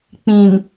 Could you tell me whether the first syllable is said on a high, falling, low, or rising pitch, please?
low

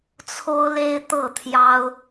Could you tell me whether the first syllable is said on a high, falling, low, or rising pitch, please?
high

